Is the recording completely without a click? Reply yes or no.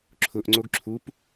no